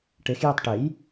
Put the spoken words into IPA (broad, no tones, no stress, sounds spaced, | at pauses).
ʈ e x j i tˤ ʈ e j